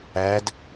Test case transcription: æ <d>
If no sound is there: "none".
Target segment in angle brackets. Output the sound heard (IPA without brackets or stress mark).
d